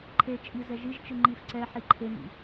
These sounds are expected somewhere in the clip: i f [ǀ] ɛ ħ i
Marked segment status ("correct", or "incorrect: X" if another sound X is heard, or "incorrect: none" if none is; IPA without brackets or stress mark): correct